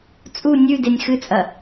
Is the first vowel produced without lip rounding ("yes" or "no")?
no